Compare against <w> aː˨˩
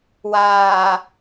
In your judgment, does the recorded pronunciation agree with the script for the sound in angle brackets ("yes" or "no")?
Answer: yes